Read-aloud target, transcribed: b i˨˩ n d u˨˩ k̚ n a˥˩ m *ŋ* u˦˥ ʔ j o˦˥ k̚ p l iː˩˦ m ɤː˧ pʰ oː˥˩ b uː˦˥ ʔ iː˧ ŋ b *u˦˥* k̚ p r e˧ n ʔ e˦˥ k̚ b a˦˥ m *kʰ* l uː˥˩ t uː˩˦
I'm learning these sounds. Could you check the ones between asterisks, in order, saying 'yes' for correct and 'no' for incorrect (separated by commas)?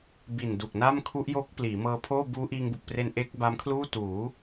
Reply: no, no, yes